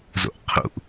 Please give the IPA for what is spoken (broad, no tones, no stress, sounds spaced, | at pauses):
z o̰ ʔ qʰ ṵ ʔ